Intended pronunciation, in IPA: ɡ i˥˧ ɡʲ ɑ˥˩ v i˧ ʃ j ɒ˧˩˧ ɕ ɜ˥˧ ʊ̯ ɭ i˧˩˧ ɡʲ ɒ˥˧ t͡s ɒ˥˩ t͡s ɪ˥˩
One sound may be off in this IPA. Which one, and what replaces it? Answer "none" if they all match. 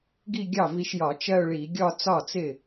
ɕ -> t͡ʃ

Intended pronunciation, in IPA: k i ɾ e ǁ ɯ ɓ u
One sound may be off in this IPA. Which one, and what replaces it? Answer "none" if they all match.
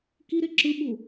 none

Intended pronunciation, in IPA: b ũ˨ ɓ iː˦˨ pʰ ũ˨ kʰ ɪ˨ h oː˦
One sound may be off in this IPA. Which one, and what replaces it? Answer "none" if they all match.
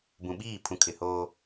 none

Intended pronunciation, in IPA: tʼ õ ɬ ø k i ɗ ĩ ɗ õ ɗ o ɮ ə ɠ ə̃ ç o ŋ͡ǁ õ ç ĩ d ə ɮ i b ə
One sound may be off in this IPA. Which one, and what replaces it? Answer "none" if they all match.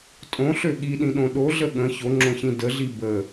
k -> ɠ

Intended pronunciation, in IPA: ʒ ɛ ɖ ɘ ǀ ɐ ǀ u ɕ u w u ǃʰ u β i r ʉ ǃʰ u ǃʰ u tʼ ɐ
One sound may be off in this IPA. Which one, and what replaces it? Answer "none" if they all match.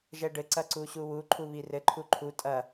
ʉ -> ɘ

